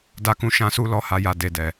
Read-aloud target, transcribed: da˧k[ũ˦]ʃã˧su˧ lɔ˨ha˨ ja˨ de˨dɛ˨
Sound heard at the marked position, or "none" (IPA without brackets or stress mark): ũ˧